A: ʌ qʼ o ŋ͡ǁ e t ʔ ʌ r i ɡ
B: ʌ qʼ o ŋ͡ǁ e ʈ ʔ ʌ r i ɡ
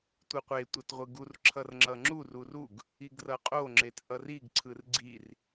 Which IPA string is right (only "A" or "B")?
A